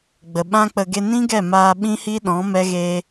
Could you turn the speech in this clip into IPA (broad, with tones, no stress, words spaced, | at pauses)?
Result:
ɡ͡bə˨ɓã˦k͡pə˧ ɡe˧nĩ˦ɡɛ˦˨ maː˧ ɓĩ˦hi˦ɗɔ̃˨˦ mɛ˦ɣe˦